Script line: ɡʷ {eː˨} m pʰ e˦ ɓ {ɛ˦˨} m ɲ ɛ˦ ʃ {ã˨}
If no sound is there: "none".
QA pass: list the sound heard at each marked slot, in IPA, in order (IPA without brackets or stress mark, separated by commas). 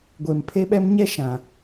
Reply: eː˨, ɛ˦, ã˨